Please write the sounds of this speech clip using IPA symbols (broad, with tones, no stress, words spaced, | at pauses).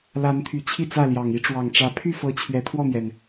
la˨˦nt̪ʰy˨˩ t͡ɕʰi˥˨ t͡sä˥˨ljɑ˨˩ŋ i˦ʈ͡ʂwɑ˨˩ŋʈ͡ʂä˨˦ pʰy˥˨fɤ˨˦ t͡ɕʰɥɛ˨˦t̪ʰwɔ˥˨n̪jɛ˩n